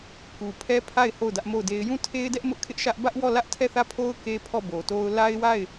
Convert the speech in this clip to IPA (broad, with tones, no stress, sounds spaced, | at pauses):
k u˨ pʰ ɛ˦ pʰ a˦˨ ɪ̯ h o˦˨ ʊ̯ d ä˦ ʔ m o˦˨ ʊ̯ d e˦ ɪ̯ j ũ˦˨ tʰ e˦ ɪ̯ d ɛ˦ ʔ m ʊ˦ ʔ kʰ ɪ˦ ʔ ʃ ä˦ ʔ b ä˦ ʔ w ɔ˦˨ l ä˦ ʔ tʰ ɛ˦˨ θ ä˦˨ pʰ o˦ ʊ̯ k e˦ pʰ ɔ˦˨ b o˨ t o˦ ʊ̯ l a˦ ɪ̯ w a˦˨ ɪ̯